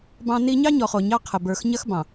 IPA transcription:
b ɑ̃˦ n i˦ ɲ ɑ˦ ɲ ɔ˨ χ o˨ ɲ ɑ˦ qʰ ə˨ b ə˞˨ x ɲ ɐ˦ x b ɑ̃˨

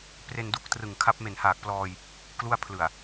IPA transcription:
p r e˧ n d u˦˥ k̚ t r ɯ˨˩ ŋ kʰ a˦˥ p̚ m e˨˩ n h aː˨˩ k̚ p l ɔː˧ j | k l u˥˩ a̯ pʰ l ɯ˨˩ a̯

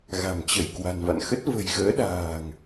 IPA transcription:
ɣ a̤˨˩ m t͡ɕ ə˧˩ j k w a̤˨˩ n v a̰˧˨ n x ə˦˥ t̚ v ə̤˨˩ j ɣ əː˨˦ ɗ a̤ː˨˩ ŋ

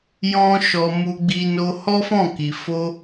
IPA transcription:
j ɔ̃˦ ʃ ɔ˧ m u˦ ɡ͡b i˦ n o˧ h ɔ˦ f ɔ̃˦˨ k i˨ f o˧

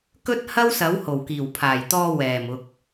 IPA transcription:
k ɵ˥ t̚ h ɐ˥ w s ɐ˨˥ w h o˨˩ w k iː˨˩ w pʰ aː˨˩ j t̪ ɔː˧ w ɛː˨˩ m ʊ˨ k̚

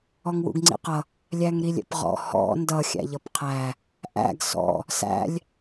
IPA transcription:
ɔ ŋ w ṵ ɡ ŋ͡ǀ ḭ q ʌ | lʲ æ ŋ ɾ i lʲ ɛ̰ p ʁ ɔ̰ h ɔ̰ n d ʌ xʲ æ̰ ʎ ʌ p qʰ æ | ʔ æ̰ ɡ s ɔ̰ | s æ̰ lʲ

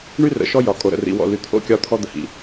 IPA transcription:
ɳ y˦ r ə̰˨ ʃ ɔ˦ j ɒ˨ kʼ o˨ ɾ ə̰˨ r ḭ˨ w ɔ̰˨ l y˨ t̪ʰ o̰˦ kʲ ɒ˦ t̪ʰ ɔ˦ d̪ ə˨ h ḭ˨

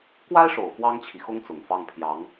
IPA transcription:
k w a˥ ɪ̯ ʂ o˨˩ ʊ̯ f w ɑ˥ ŋ t͡ɕʰ i˨ x ʊ˥ ŋ t͡s ʊ˨˩ ŋ f ɑ˥˩ ŋ pʰ j ɑ˧˥ ŋ

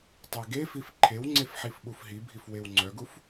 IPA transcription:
tˤ ɛ ɡ e f i f ǃʰ e w ŋ͡ǀ e f ħ i f ɓ u f ɦ i bʱ i f w e w ŋ͡ǀ œ ɡ u f

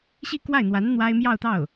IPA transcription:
ɕ i˥˧ k w a˥˩ ɪ̯ n̪ w a˧˥ n n̪ w a˥ ɪ̯ m j ɑ˥˧ ʊ̯ t̪ ɑ˥˩ ʊ̯

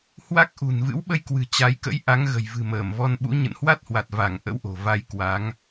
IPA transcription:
h w a˦˥ k̚ ʔ ṳ˨˩ n v ɨ̰˧˥ w ɓ ə˧ j k w ɨ̤˨˩ t͡ɕ a˨˦ j k ə̰˧˥ j ʔ a˨˦ ŋ ɣ ə̤˨˩ j v ɨ̤˨˩ m əː˧˩ m v ɔ˧ n ɓ ṵ˧˥ ɲ ə̰˧˨ n h w a˦˥ t̚ h w a˨˩ t̚ v a˧˩ ŋ ʔ ə̰˧˥ w ʔ o̤˨˩ v a˧ j k w a˨˦ ŋ

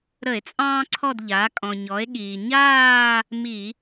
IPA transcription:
ɾ ə˧˩˧ e̯ t͡sʼ ɑ̃ː˦ ǀʰ ɔ˦˨ d ʎ aː˩˧ kʼ ɔ̃˩ ɲ ɔ˩˧ e̯ ɠ iː˩ ɲ aː˦˨ | m i˧˩˧

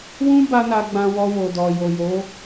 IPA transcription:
w ũ˦ b a˦ n a˧ ɡ͡b ã˧ w ɔ˧ w o˨ d ɔ˨ j o˨ j o˨˦

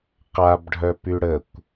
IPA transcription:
q a b ɖʱ œ p y ɽ ə kʷ

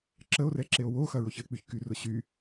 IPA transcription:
ǁ ə o̯ r ɛ ǁ e o̯ w o x ɐ ɹ o ç ə e̯ k͡p y ç k y r ʊ ɕ y

